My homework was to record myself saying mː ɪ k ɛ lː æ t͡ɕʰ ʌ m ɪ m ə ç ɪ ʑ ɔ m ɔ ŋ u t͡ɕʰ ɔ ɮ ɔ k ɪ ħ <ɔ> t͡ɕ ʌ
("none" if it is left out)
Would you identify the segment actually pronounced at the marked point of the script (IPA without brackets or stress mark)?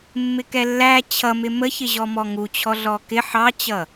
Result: ɑ